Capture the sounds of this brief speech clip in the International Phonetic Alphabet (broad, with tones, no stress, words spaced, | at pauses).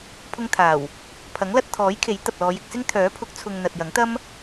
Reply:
pʰʊ˧ŋt̪ʰaː˨˩w | pʰɐ˨˥ŋlɐ˧t̚t̪ʰɔː˨˥jkʰe˨˥j t̪ɐ˨p̚lɔː˨˧jɪ˧k̚sɪ˥ŋ t̪ʰœː˨˥pʰʊ˨˥k̚t͡sʰʊ˨ŋ n̪ɐ˨t̚jɐ˨˥ŋt̪ɐ˥m